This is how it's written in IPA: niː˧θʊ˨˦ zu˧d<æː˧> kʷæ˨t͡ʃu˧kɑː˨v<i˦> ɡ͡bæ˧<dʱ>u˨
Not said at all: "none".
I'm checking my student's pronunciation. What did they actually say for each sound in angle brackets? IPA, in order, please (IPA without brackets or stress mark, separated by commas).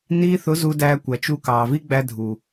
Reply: æː˧, i˦, dʱ